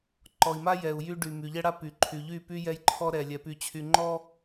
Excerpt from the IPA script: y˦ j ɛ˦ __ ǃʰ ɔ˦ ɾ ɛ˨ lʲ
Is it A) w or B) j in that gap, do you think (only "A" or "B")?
B